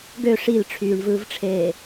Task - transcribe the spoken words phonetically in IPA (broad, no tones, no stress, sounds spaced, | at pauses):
ɡ ø ʂ i l ʈ͡ʂʰ yː ɳ v ɯː v ʈ͡ʂʰ eː